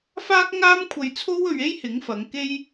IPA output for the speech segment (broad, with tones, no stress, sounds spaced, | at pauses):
f aː˥ k̚ ŋ aː˥ m kʷʰ ɐ˧ j t͡sʰ o˥ w ɵ˧ ɥ e˥ j h ɪ˨˥ ŋ f ɐ˨˧ ŋ k e˥ j